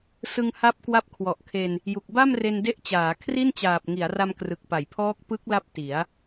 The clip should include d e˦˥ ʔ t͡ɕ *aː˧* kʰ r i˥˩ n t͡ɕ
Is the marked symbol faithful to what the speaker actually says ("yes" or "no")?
no